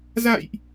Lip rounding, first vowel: unrounded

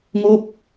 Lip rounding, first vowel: rounded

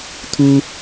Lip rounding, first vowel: rounded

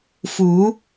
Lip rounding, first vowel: rounded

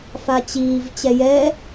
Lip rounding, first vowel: unrounded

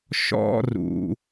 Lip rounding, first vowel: rounded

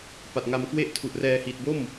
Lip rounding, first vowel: unrounded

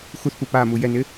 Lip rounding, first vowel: rounded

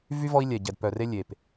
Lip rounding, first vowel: rounded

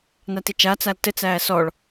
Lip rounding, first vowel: unrounded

